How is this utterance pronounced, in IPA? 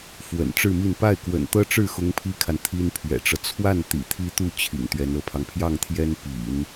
fwə̰˨˩nʈ͡ʂɻ̩˥˧mi˥˧n pa˥˩ɪ̯kwə̰˨˩nt̪ɤ˥ʈ͡ʂɻ̩˥˩ xʊ˥ŋpʰi˥kʰa˨n t̪ʰi˥npʰɥɛ̰˨˩ʈ͡ʂɤ˦ t͡sʰwa˥˩nt̪ḭ˨˩ t̪ʰi˥t̪u˥˩ t͡ɕʰḭ˨˩ŋt̪ɥɛ˧˥nɤ˧˥pʰɑ˧ŋ pʰjɑ˥˩ŋt̪ʰjɛ˥npḭ˨˩˦n

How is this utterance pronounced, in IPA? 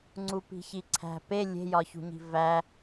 ŋ͡ǀupi̤çiǀʰæ̤ pe lʲe̤jɒçṳɲi̤ væ

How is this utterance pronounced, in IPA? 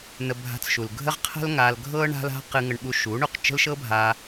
nə˧bʱa̤˧t͡sʃu˨lɡʱə˦ʁ qʰə̤˦lŋa˧lɡʱɤ˦ ɳa̤˦la̤˦ qɨ˧ŋə˧ɳɓu˧ ʃu˨˦ɳu˨q t͡ʃə̤˦lʃɤ˦bʱa˧

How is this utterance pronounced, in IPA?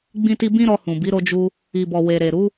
ɡ͡bĩ˦ti˦ bĩ˦ɾɔ˧ hũ˨bi˨˦ ɾo˧d͡ʒu˧ | i˨bɔ˨ we˨ɾe˨ ɾu˨˦

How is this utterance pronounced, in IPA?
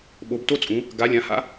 ɓo˩˧bto˦t͡sʼũ˩˧ | ɡa˩˧lʲã˩˧ha̰˦

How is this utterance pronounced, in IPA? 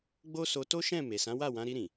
ɡ͡bo˦so˧ to˦ʃɛ̃˦˨ me˨sã˨˦wa˦˨wã˨˦ ɾi˧ɾĩ˨

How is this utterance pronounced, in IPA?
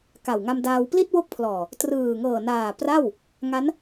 ka˨˩wŋa˧mdaː˧w pli˥˩t̚wo˦˥k̚pʰlɔː˨˩ | trɯː˨˩ŋɤː˨˩naː˨˩ pra˥˩w | ŋa˦˥n

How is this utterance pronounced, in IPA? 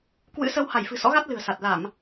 kwɨ̰˧˥sə˧w ha˧˩jfɨ̤˨˩sɔ̰˧˥ɣa˦˥t̚ lɨ̤˨˩ə̯sa˨˩t̚ la˧˩˨m

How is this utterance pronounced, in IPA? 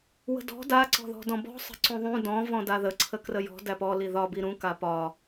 wə̤dɔ̤ da ǀɔ̤ðɔ̤dɔ̃bɔ̤ sˤə̤ǀũðˤũ dɔ̃ vɔ̃daðə ǀʰəkrəjɔ̤ dæpɔ liðɒ biɾũ kapɒ

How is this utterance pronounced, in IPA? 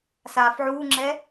saːfʕuːŋ͡ǁɛ

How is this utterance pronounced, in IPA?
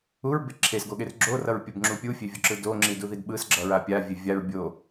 uɹbe ǁʰesɡoɠer ɡ͡ǁorʌɹpʲobŋ͡ǁu pʲufʲevʲoǁɯ doŋ͡ǁiduðid ɓɯsɡ͡ǁʌɹa pʲavʲe vʲaɹ bʲo

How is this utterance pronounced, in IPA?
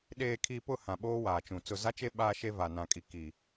ɗeː˨kʰi˨ pʊ˦˨ hã˨ɓoː˦waː˨t͡ʃũ˨ t͡sʊ˨za˦t͡ʃe˦ ɓaː˦ʃe˦ va˨nã˨kʼi˨ ki˨

